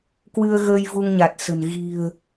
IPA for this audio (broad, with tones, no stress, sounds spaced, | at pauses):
k w ɨ˧ ə̯ ɣ əː˧ j v u˧ ŋ ɲ a˨˩ t̚ s ə̤˨˩ n ɣ i̤˨˩ ə̯